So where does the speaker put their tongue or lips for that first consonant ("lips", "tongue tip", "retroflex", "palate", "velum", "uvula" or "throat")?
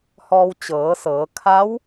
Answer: throat